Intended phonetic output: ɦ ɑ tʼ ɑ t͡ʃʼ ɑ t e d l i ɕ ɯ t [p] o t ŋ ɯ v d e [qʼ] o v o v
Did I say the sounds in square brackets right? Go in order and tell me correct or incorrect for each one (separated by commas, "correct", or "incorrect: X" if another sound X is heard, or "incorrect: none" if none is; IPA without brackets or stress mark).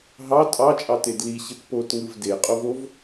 correct, correct